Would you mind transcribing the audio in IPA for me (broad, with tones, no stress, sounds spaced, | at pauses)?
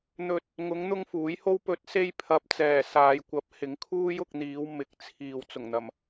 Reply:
n̪ ɵ˨ t̚ | ŋ ʊ˨˧ ŋ n̪ ʊ˧ ŋ f uː˨˥ j h o˥ w p ɵ˨˥ t̚ s e˧ j pʰ ɐ˨ p̚ t͡s ɛː˨˩ s aː˨ j kʷ ɐ˨˥ p̚ h ɪ˨˥ ŋ kʰ uː˥ j ʊ˧ k̚ n̪ iː˨˧ w m ɪ˨˥ k̚ t͡sʰ iː˨ w t͡s ʊ˨˩ ŋ n̪ ɐ˨˩ m